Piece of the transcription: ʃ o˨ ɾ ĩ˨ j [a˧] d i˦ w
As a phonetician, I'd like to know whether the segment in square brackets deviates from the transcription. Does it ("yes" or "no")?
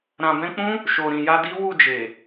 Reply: no